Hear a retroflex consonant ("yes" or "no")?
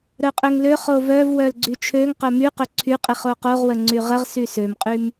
no